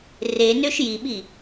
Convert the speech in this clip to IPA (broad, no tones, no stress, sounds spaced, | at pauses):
r e n ø ʃ j i ɓ i